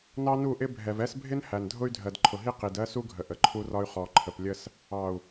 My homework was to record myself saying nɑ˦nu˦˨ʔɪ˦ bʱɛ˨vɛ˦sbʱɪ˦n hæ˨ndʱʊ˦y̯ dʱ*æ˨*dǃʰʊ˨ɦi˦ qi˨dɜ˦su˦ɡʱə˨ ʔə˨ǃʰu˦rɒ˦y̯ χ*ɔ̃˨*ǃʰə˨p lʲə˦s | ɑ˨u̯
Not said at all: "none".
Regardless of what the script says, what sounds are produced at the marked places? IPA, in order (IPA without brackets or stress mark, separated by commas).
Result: ɜ˨, ɔ˨